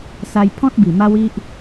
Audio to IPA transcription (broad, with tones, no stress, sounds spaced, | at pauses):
s a˧ j pʰ ɔ̃˦ t̚ b i˨˩ m a˦ w i˦ ʔ